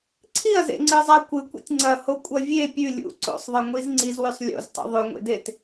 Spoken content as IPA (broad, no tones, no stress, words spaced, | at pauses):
ǀʰiɐ̯zḛŋ͡ǀɨzˤa kʷɨkʷḭtʲ ŋ͡ǀɐhokʷʼɐ vʲe pʲʉ lʲṵ ǀo̰sˤðˤɨŋʷiz ŋ͡ǀizwʉsˤ lʲo̰ztˤṵ ðˤʉŋʷḛdet